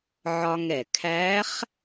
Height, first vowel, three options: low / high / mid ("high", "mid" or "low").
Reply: low